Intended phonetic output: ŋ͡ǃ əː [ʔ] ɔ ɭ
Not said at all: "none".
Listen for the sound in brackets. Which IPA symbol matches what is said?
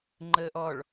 ʔ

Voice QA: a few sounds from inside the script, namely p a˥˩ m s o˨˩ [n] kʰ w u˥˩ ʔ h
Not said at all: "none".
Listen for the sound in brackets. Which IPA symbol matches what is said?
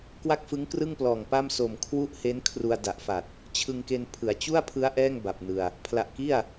m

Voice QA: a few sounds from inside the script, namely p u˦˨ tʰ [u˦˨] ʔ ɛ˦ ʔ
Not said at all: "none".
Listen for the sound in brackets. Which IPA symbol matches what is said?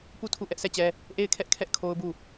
u˦˨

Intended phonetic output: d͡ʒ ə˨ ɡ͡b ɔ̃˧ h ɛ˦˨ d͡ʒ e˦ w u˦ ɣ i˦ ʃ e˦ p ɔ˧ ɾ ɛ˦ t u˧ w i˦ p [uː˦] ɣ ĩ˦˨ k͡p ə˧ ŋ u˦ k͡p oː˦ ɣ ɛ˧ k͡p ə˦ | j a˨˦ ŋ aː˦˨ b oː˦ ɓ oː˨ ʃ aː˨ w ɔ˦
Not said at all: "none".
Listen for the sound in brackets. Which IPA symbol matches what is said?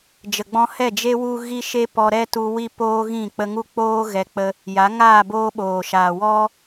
oː˦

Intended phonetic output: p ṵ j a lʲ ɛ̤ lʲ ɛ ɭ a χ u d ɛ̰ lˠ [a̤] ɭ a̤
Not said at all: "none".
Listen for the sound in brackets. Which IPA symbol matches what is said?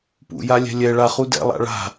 a̰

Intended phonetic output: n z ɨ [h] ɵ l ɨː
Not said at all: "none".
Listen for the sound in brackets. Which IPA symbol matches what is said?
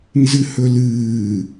h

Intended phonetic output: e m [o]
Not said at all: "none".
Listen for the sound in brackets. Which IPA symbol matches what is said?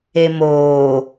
oː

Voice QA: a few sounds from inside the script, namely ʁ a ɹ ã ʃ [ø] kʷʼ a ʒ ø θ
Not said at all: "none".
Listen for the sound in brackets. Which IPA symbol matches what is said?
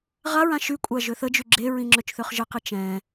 y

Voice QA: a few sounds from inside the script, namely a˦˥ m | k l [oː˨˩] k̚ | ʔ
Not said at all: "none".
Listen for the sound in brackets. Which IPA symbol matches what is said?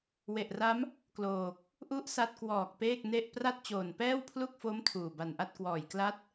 oː˨˩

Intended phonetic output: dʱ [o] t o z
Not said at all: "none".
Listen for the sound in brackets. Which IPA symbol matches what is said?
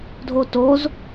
o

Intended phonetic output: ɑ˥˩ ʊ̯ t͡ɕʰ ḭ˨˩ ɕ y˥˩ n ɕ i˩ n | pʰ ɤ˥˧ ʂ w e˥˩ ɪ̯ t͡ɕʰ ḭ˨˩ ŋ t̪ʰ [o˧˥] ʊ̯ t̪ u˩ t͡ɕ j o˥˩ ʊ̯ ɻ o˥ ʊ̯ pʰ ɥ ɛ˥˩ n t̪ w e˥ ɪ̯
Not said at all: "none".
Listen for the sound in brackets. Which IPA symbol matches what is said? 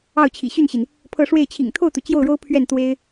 o˥˩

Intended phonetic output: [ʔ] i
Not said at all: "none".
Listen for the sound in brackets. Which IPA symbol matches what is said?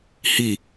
h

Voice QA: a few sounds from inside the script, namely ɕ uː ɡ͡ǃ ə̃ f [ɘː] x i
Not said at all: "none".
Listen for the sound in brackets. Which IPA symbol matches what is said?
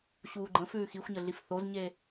ʉː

